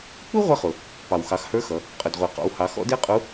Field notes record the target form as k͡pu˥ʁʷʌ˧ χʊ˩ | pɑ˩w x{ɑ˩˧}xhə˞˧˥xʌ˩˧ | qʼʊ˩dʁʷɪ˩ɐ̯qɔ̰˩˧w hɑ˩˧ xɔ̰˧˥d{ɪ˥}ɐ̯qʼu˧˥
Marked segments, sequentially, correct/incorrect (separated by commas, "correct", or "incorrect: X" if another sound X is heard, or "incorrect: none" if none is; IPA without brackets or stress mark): correct, correct